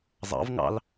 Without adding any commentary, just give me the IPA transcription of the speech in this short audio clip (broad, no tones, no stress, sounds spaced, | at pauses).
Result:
zˤ ɑ̰ v ŋ ɑ̰ l